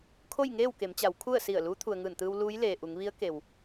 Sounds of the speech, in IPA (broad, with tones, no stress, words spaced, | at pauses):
kʰo˥˨jŋeː˥˨wke˩˧mt͡ɕa˩˧w kʰu˥˨ə̯si˧˩ə̯ luː˧˥t̪ʰu˩ə̯ŋɯː˧˩nt̪ɯː˧w luː˧˥jleː˩ʔu˩˧ŋ ʋi˧˥ə̯ke˩w